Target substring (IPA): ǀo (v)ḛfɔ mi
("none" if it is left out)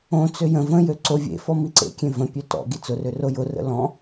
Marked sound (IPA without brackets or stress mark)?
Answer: vʲ